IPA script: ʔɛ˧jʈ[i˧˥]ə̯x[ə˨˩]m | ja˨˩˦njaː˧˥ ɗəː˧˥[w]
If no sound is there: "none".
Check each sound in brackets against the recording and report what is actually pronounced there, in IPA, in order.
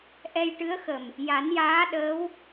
ɨ˧˥, ə˨˩, w

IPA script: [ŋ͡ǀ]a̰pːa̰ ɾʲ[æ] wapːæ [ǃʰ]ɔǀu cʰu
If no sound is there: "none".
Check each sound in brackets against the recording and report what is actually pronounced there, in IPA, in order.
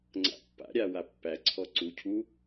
ŋ͡ǀ, a, ǀʰ

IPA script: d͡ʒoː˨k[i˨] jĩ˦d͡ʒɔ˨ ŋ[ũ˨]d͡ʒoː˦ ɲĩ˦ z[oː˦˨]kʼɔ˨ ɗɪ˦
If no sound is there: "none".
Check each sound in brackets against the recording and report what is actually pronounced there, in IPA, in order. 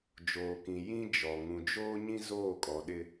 ĩ˨, ũ˨, oː˦˨

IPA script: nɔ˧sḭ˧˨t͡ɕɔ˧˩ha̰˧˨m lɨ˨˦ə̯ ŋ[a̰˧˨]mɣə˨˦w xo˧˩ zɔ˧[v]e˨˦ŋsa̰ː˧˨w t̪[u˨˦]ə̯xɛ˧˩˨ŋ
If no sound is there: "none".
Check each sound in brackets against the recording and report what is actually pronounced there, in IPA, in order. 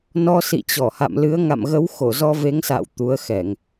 a̰˧˨, v, u˨˦

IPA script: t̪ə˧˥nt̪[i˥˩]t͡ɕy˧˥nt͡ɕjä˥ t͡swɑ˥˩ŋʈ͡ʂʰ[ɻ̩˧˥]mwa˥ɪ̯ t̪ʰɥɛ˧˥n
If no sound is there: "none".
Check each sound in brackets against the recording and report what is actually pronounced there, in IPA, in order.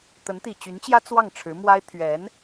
i˨˩, ɻ̩˧˥

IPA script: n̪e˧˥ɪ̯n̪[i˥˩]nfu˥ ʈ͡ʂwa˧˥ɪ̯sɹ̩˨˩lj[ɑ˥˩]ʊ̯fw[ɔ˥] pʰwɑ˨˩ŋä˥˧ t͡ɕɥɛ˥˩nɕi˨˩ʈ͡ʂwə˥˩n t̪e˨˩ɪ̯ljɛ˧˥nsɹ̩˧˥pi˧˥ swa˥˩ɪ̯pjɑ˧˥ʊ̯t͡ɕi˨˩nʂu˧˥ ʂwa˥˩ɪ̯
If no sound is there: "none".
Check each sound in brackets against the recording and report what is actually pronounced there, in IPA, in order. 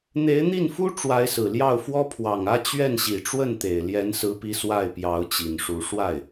i˥˩, ɑ˥˩, ɔ˥

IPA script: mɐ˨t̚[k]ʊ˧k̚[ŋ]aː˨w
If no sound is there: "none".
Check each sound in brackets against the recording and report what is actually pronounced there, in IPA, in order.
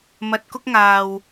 k, ŋ

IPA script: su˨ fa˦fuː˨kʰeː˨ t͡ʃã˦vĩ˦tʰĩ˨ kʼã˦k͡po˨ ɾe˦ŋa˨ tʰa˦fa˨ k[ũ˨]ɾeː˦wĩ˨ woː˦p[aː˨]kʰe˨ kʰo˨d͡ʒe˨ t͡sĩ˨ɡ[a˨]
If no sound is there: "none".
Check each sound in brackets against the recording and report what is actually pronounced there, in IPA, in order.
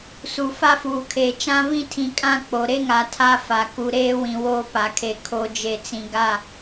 u˨, a˨, a˦˨

